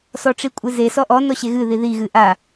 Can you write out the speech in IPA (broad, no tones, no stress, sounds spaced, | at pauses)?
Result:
s ɔ ʈ͡ʂ i kʷʼ ɨ z e s ɔ ʔ ɔ n ɔ ɕ e ɣ ɨ ð i ð i ɣ ɨ ʔ a